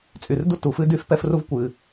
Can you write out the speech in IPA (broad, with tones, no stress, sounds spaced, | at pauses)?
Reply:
t͡sʼ y˩ r d u˥ t u˩ f ɨ˥ d y˥ f p ɛ˥ f r u˥ v kʷ ɨ˩